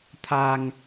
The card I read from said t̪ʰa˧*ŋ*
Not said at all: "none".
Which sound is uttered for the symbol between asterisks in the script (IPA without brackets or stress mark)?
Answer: ŋ